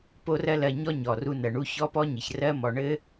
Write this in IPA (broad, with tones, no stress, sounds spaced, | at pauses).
p o˦ r ɜ˦ l ɜ˨ ɲ ɔ˦ ɲ ɔ˩ r u˨ n ɜ˩ ɳ u˦ ç ɔ˦ p ɔ˦ ɲ ɘ˩ ç r ɜ˦ m ɔ˩ ɳ ɘ˥